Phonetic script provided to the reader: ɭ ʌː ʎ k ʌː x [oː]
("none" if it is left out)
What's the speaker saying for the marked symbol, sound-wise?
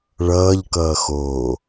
oː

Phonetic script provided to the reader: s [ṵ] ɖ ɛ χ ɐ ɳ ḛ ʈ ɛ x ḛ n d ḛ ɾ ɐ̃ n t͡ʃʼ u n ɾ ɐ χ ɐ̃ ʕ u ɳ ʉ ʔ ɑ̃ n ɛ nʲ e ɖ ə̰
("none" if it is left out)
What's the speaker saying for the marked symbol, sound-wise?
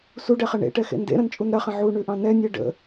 u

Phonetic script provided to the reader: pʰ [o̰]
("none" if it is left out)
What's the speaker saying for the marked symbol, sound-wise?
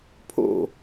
o̰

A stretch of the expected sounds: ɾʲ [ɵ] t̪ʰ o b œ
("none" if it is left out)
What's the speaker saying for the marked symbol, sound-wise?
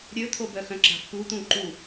ɵ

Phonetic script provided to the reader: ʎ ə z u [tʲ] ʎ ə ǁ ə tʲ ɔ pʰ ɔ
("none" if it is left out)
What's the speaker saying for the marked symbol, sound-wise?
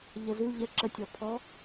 none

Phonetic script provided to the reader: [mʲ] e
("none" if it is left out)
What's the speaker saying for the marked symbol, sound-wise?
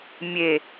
mʲ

